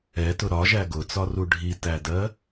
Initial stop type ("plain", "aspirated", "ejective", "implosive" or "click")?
plain